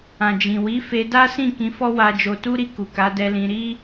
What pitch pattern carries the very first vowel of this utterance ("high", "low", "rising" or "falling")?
low